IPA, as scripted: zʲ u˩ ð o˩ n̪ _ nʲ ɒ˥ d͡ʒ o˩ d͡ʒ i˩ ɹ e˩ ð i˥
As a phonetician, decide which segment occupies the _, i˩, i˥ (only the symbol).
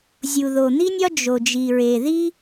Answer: i˥